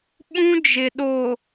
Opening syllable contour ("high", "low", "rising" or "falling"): high